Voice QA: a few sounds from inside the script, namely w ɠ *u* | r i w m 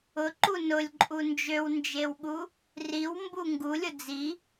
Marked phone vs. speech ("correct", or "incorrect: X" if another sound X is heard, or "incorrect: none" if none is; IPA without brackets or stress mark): correct